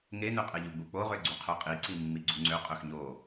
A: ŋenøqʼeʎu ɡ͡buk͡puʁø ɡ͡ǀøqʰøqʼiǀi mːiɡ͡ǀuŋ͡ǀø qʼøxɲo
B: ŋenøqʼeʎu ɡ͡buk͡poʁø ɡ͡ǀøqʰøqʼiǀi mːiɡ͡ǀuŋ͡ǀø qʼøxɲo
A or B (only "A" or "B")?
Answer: B